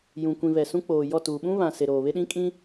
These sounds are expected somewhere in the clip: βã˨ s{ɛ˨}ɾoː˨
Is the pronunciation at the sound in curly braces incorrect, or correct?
incorrect